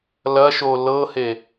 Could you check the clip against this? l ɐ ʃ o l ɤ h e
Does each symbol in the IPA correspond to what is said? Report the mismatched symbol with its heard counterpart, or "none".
none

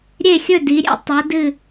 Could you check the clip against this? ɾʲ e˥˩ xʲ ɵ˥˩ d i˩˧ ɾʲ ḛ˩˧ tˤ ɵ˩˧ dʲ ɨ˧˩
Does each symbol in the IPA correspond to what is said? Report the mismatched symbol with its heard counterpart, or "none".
dʲ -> d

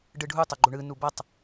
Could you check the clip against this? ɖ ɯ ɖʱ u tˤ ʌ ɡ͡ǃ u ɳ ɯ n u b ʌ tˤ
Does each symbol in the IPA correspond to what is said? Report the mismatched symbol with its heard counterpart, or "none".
none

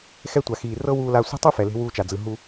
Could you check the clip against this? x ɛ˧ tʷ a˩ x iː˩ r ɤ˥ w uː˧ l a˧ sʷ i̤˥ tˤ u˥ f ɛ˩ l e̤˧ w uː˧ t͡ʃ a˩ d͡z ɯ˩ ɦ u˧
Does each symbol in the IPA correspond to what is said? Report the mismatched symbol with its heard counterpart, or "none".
none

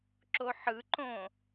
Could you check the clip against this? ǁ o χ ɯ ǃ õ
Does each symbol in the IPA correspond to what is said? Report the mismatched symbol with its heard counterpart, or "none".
χ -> ħ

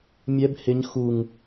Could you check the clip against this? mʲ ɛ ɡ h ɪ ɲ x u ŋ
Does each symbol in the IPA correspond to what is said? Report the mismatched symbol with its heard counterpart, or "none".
ɡ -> b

